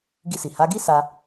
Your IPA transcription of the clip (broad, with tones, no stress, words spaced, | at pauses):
ɡi˧si˨ ha˨˦ ɡi˦sa˧